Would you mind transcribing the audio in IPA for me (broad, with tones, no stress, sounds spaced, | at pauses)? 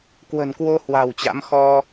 k w ə̤˨˩ n k w o˧ h w a̤˨˩ w t͡ɕ a̰˧˥ m x ɔ˧